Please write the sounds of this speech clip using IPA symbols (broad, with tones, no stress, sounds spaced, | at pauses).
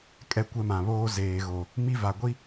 kʼ ɛ˦ kʷ ɛ˦ m ã˨ β oː˦ z eː˨ ɣ o˨ | m i˦ v a˨ ɡʷ i˦